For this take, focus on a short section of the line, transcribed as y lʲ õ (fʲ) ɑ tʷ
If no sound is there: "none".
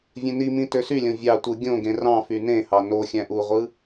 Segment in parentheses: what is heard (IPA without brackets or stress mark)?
vʲ